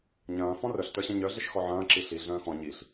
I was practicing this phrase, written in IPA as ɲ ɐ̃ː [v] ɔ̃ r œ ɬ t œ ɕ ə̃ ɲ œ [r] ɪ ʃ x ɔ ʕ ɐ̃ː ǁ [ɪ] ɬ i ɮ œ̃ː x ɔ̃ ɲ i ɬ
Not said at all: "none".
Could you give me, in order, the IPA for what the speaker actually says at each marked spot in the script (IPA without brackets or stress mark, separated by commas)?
f, ɮ, i